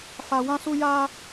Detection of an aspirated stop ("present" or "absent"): absent